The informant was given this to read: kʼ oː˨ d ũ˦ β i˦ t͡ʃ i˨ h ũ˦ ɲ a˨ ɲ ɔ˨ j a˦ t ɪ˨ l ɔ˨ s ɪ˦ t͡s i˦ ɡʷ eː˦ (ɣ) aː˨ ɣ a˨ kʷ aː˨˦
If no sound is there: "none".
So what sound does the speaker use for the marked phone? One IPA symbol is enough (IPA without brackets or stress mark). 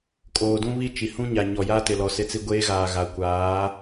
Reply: ɣ